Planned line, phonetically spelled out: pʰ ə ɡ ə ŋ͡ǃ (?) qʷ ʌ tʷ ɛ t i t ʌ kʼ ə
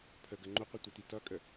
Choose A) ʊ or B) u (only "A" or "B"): A